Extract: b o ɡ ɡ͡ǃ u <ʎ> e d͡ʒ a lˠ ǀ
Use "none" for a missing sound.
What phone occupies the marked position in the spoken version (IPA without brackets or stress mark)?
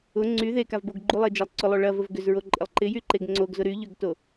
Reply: lˠ